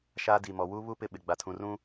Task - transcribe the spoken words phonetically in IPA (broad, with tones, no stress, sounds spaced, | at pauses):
ʃ a˦ d i˨ m ɔ˨ w u˦ β u˦ p ɪ˦ ɓ ɪ˨ ɡ͡b a˨ tʰ ũ˨ r ũ˦